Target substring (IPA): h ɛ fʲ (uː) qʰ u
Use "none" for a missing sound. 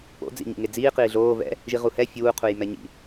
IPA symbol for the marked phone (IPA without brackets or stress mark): uː